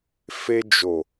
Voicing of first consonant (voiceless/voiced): voiceless